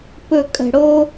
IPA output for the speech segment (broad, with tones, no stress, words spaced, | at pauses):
pɵ˨˩ kʼə̤˨˩ɽo˧